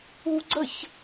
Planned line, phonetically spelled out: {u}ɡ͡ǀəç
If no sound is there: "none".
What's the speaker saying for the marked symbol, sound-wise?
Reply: u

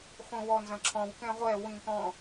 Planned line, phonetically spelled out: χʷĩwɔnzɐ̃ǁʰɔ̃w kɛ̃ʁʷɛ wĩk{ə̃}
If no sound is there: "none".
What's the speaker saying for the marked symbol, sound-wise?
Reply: ɔ̃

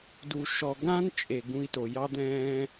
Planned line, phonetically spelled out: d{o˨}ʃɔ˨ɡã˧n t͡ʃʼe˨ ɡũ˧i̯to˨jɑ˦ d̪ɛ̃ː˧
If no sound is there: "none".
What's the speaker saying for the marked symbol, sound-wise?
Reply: u˨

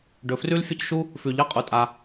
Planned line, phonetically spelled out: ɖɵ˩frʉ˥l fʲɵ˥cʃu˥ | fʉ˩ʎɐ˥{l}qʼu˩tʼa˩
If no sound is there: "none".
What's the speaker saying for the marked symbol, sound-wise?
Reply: none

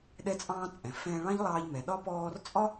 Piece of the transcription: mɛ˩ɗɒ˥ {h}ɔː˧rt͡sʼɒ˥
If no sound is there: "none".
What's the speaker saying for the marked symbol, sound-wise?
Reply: p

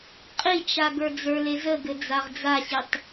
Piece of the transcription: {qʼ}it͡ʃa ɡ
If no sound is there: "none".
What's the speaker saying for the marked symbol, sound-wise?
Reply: qʼ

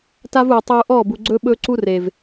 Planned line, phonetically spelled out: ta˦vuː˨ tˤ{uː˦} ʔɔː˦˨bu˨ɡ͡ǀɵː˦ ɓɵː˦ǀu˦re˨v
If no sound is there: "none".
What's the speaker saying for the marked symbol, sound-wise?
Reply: uː˨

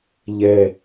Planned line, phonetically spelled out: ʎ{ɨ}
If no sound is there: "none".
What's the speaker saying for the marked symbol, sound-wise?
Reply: ɛ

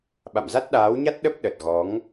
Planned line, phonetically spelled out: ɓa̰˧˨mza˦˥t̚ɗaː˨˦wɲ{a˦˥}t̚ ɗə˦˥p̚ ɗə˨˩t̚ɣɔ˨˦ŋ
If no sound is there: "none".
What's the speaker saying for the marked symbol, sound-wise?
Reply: a˦˥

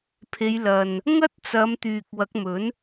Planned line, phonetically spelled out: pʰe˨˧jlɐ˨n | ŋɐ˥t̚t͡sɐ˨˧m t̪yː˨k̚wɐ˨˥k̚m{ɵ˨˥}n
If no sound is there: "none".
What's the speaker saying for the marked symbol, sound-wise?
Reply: ɵ˨˥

